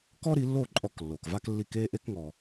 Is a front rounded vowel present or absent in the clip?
absent